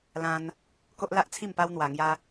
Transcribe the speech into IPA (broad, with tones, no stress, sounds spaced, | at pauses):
l ã˦ n | k o˦ ʔ l a˦ ʔ t͡sʰ i˥˧ m p a˦ w n̪ w a˧ ŋ j a˦